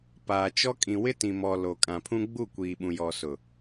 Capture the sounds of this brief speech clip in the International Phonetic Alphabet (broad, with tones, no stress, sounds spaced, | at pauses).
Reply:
p aː˨ t͡ʃ ɔ˦ kʼ ĩ˨ w ɪ˦ t ĩ˨ m ɔ˨ l o˨ kʼ ã˨ pʰ ũ˦ ɡ͡b u˦˨ kʷ iː˨ ɓ ũ˨ j ɔ˨ s ʊ˨